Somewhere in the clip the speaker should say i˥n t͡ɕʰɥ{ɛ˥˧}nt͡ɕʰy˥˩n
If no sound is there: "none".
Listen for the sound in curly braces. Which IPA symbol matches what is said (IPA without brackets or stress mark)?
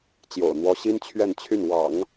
ɛ˥˧